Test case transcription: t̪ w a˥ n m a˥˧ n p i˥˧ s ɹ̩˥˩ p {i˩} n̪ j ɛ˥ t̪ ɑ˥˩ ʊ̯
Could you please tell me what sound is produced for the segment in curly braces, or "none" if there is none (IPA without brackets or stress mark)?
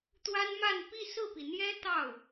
i˩